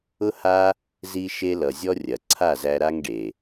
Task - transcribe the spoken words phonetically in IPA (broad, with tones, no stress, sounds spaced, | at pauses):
ʊ˦ h a˦ | z i˧ ʃ e˧ l ʌ˨ zʲ ɔ˦ rʲ ɐ˨ ǀʰ a˦˨ z æ˧ ɾ a˦ ŋ ɖ e˨